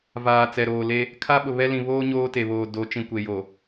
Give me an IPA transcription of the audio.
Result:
v aː˨ t͡s ɛ˨ ɾ oː˨ l e˦ | kʰ a˦ ɓ ʊ˨ β ɛ˦ l ĩ˨ β oː˦ ɲ oː˦ t e˨ β oː˨ d o˨˦ t͡ʃ ĩ˨ kʷ e˨ j o˨

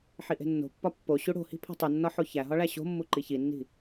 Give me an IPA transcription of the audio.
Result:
ħ i ʔ e̤ nː o̤ pː ɒ pː o ɕ u ɽ o̤ h i̤ pʰ o̤ tˤ u nː ɒ ħ o ç æ ɦ ɒ ɭ æ ɕ o̤ mː u ǃ i ç i nː i̤

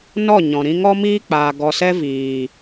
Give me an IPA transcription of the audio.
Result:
n ɔ˦˨ ɲ ɔ̃˨ ɾ ĩ˧ ŋ ɔ˦ m iː˦ k͡p aː˨ ɡ ɔ˨ s ɛ˧ v iː˨

